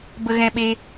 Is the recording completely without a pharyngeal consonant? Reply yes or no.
yes